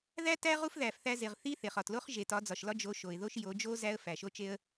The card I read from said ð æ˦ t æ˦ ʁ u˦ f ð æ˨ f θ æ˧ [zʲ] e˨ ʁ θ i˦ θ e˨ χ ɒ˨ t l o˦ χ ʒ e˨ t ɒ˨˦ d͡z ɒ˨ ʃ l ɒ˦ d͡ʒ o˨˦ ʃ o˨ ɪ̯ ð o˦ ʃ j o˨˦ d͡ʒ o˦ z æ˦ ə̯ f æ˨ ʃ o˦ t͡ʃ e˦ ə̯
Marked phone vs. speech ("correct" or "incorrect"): incorrect